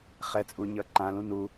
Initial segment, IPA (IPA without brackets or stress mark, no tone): χ